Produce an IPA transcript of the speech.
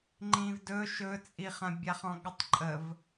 ŋ͡ǃ ĩ v d ɵ ʃ ɵ t͡sʼ i χ ɐ̃ bʲ a χ ɔ̃ ɠ ɐ tˤ ǃʼ ə v

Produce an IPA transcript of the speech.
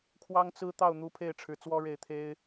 kʰ w ɑ˥ ŋ t͡s ɹ̩˥ t̪ ɑ˥˩ ʊ̯ n̪ u˧˥ pʰ e˥˩ ɪ̯ ʈ͡ʂʰ ɻ̩˧˥ t͡s w ɔ˥ ɻ e˥˩ ɪ̯ t̪ʰ e˥ ɪ̯

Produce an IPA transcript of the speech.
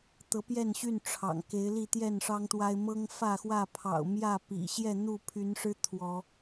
t̪ ɤ˨˦ p j ɛ˥˨ n ɕ y˥˨ n ʈ͡ʂʰ ɑ̰˨˩ ŋ k e˨˦ ɪ̯ l i˥˨ t̪ j ɛ˥˨ n ʂ ɑ˦ ŋ t̪ w a˦ ɪ̯ m ɤ˦ ŋ f ä˥˨ x w ä˥˨ pʰ ɑ̰˨˩ ʊ̯ m j ä˥˨ p ḭ˨˩ ɕ j ɛ˥˨ n̪ u˥˨ pʰ y˨˦ n ʂ ɻ̩˦ t̪ʰ w ɔ˨˦

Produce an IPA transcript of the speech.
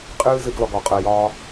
qʼ ɨː˦ z ɨ˦ ɡ l ɔ˧ ɡ ɔ˨ qʼ əː˧ j ɒː˦

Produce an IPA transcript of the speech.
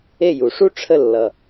e˥˩ j u˩ ʂ u˥ ʈ͡ʂʰ ə˥˩ lː ʌ˩

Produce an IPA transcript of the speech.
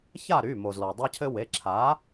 ç a˥˨ ɾ y˩˧˩ m o˩ z l ɔ˩ dˤ a˦ cʰ ɘ˦ w e˩˧˩ ǁʰ a˩˥

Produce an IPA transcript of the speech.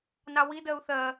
n ɑ w i d ɜ u̯ θ ɜ

